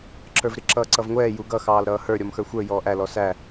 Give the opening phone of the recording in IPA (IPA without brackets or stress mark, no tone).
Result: ǁ